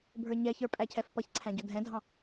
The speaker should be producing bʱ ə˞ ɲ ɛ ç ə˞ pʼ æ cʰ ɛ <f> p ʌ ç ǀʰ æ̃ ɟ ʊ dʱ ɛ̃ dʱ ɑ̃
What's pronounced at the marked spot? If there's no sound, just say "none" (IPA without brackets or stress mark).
f